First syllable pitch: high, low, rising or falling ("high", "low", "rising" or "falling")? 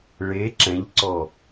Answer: rising